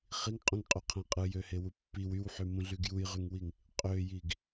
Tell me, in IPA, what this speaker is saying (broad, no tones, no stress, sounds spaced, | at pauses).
χ i ŋ qʼ ũ ŋ qʼ y qʰ æ̃ qʼ ɯ j ø h e w u pː i w y w ħ y m ũ ɮ y ɡ j u j ʁ y ŋ w i ŋ | qʼ ø j i ɡ